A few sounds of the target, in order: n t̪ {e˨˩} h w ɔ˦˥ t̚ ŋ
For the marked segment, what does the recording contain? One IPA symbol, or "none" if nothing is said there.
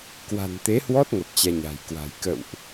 e˨˦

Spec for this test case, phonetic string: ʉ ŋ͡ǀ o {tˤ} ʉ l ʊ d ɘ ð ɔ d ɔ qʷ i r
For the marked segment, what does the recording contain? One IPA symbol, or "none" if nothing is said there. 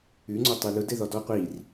tˤ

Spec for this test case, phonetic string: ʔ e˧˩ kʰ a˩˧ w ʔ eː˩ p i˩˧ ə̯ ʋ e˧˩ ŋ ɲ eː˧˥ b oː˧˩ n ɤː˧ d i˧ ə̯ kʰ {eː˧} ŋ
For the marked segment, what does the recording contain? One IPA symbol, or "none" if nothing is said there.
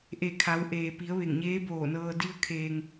eː˧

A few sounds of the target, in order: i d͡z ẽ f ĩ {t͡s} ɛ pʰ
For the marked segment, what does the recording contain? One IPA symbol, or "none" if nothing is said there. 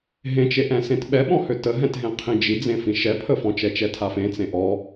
ʃ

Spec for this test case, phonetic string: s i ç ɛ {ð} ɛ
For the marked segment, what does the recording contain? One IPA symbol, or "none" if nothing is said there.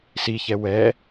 w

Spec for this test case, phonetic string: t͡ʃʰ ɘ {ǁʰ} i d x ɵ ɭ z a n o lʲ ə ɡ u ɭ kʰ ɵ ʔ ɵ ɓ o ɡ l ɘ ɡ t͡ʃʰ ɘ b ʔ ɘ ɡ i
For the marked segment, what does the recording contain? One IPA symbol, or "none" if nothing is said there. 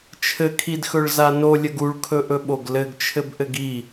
kʰ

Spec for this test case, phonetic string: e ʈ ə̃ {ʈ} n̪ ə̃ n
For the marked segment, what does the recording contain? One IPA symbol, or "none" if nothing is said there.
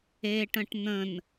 ʈ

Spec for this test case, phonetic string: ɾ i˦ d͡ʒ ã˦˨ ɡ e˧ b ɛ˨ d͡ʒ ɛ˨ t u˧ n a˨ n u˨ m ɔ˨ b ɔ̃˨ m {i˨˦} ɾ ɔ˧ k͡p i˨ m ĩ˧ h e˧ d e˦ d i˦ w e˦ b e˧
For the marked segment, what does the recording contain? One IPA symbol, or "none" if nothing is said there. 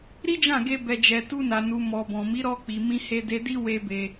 i˨˦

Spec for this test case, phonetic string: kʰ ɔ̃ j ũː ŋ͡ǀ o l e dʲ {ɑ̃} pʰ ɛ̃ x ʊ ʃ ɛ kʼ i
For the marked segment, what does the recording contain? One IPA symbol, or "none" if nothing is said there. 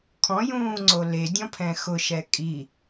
ɔ̃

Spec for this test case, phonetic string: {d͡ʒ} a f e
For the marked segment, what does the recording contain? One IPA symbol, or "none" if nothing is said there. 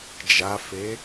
d͡ʒ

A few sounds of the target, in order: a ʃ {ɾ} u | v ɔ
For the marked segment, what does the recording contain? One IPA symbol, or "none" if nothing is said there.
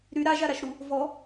ɾ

